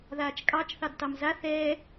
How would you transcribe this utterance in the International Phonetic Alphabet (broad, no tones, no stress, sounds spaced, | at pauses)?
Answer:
ð aː t͡ʃ kʼ ɑ t͡ʃ θ ɑ d t ɑ m z a θ ɛː